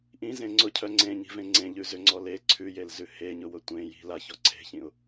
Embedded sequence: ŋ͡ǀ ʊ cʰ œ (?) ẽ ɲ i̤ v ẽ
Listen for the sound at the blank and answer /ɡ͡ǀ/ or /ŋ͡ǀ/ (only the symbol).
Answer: ŋ͡ǀ